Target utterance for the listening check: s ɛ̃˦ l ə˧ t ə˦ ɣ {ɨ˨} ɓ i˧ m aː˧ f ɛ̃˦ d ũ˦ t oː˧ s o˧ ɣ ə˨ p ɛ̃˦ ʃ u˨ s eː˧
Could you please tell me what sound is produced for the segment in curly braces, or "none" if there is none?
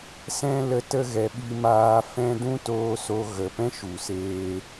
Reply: ɛ˨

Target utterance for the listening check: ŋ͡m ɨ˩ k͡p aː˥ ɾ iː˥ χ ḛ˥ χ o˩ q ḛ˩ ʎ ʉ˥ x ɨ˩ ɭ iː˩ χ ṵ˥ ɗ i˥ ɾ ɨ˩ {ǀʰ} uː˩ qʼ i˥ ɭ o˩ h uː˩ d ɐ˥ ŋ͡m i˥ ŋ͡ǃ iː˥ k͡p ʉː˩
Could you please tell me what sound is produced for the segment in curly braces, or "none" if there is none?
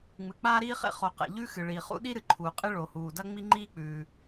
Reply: ǃʰ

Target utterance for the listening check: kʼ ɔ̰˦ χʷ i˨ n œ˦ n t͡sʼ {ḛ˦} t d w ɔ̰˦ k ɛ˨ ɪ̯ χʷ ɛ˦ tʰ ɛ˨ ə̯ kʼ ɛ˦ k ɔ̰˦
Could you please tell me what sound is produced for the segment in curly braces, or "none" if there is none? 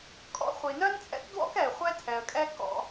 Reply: ɛ̰˦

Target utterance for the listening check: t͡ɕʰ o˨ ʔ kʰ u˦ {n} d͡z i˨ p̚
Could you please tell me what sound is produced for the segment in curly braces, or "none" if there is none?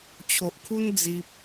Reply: n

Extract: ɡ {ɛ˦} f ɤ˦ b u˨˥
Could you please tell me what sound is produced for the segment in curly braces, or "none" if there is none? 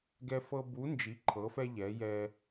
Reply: ɛ˦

